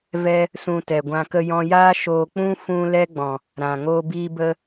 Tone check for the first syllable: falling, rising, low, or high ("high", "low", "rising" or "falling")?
high